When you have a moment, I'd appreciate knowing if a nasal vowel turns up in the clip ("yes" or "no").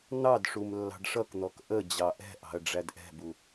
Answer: no